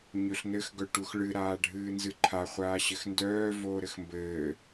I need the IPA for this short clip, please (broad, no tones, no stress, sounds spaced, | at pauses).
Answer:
ɲ ɵ ɬ n ɘ x ɡ œ ʈ u x ɭ ɨ ɾ aː ɖʱ ɨː n z ɨ ǃʰ a χʷ aː ɕ ɘ x n d œː v oː ɾ ɘ x m b ɘː